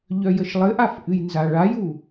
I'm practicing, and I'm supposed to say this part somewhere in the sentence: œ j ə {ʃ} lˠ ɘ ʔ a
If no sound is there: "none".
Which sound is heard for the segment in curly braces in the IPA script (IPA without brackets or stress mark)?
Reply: ʃ